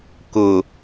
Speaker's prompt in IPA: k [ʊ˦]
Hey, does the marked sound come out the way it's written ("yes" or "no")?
no